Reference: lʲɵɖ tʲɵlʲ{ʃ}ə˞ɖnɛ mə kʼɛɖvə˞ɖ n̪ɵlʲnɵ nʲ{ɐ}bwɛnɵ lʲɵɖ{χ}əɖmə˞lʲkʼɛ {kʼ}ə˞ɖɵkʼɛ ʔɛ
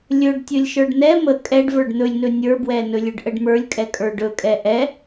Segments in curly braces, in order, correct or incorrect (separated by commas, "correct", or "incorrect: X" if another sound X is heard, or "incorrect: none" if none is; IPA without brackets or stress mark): correct, incorrect: ə˞, incorrect: ʔ, correct